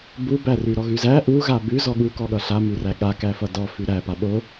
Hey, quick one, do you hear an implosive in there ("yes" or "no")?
yes